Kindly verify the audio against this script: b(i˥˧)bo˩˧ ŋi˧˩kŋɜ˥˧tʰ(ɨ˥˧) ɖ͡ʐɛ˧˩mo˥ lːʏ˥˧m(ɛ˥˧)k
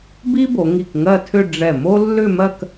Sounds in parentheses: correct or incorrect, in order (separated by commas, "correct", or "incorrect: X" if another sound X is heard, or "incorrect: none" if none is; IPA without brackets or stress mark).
incorrect: i˥, incorrect: ʏ˥˧, incorrect: ɜ˥˧